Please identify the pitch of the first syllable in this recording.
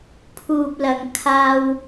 low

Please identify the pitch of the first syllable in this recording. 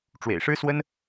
low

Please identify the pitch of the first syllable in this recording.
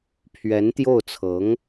rising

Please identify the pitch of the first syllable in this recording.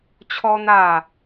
high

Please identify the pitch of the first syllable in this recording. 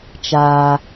low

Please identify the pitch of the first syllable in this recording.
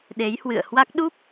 rising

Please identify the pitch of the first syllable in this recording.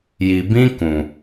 low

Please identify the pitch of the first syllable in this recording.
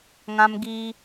high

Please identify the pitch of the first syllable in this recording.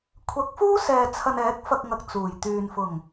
rising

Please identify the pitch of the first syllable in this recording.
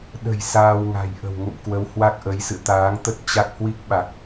low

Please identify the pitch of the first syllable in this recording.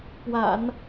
low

